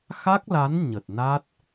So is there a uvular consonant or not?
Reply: no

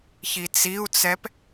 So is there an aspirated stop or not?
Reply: no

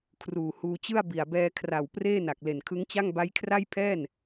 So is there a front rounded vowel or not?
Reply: no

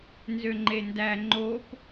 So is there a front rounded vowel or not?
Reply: yes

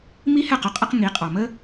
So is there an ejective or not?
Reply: yes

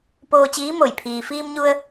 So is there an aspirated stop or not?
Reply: yes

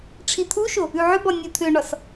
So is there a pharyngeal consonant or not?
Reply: yes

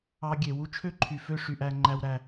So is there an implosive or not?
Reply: no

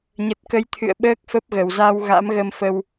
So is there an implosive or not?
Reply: yes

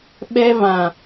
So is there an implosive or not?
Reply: yes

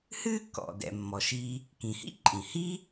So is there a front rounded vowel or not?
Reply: no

